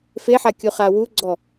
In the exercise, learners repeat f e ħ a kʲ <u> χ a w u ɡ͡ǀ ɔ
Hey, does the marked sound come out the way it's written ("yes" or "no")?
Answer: yes